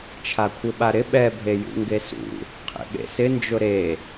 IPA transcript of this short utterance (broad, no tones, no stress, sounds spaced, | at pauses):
t͡ʃʰ a kʷʰ ɪ ɓ a ɾ ɪ ɓ ɛ bʱ e j ṵ ŋ ɡ e s ṵ | qʰ ḛ ɓ ḛ s ɪ n d͡ʒ ʊ ɾ e